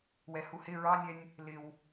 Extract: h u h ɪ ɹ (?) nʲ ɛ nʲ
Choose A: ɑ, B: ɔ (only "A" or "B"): A